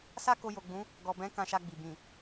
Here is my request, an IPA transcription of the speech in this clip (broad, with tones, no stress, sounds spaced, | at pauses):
s a˦ k o˧ j o˨ ɡ͡b ũ˨˦ | ɡ ɔ˨ b ɛ̃˨˦ k ã˧ ʃ a˧ ɡ͡b i˨ b ĩ˨